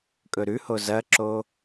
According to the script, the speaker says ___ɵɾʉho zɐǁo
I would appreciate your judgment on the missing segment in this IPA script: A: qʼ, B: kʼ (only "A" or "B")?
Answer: B